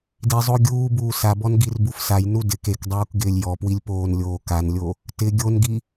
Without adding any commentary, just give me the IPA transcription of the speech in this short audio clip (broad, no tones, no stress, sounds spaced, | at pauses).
d i zˤ o ɡʲ uː b uː s a b ɔ n ɡ i r b u f s a j n u d ɪ k e k dˤ uː k ɡ ɪː lʲ j ɔ p w i lʲ p oː n lʲ oː k a n lʲ o | t ɪ ɡʲ o n ɡ i